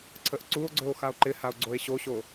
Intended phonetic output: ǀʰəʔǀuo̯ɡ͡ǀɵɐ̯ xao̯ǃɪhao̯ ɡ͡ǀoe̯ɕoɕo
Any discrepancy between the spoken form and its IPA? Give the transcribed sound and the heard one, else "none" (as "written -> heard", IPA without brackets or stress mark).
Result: ɐ̯ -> o̯